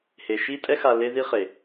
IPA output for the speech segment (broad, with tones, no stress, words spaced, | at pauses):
he˨ʃi˦tʼɛ˦ xa˧le˦ði˦ χe˨